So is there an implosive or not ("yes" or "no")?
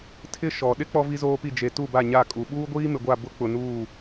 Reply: yes